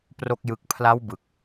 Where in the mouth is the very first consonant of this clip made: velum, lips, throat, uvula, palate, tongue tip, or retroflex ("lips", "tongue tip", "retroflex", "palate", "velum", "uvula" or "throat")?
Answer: lips